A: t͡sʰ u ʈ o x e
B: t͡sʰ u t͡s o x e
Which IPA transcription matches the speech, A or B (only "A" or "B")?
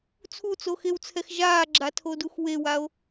B